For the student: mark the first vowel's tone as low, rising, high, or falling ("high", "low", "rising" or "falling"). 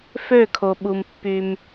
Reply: falling